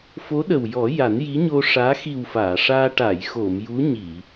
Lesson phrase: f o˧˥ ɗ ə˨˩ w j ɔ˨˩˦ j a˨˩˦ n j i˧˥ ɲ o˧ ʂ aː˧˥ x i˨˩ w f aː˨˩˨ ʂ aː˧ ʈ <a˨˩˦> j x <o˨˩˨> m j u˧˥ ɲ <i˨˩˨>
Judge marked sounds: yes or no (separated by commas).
no, yes, yes